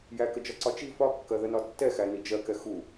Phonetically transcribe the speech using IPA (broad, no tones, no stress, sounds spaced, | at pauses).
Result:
j æ k ə d͡ʒ ɒ ǀ ɒ t͡ʃ i f ɒ kː ɜ ð ə n ɒ tː ɛ x æ n i d͡ʒ ɜ k ɛ x u